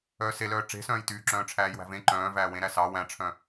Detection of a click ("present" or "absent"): present